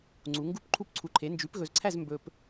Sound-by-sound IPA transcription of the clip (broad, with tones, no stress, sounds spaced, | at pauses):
ŋ͡ǀ u˨˥ ŋ ɡ u˥˧ p ǃʰ u˥˧ p ǀʰ u˧ ǃʰ e˨˥ n d͡ʒ ʉ˨˥ p ɣ ɵ˧ z ǀʰ æ˥˧ z m b ɵ˧ p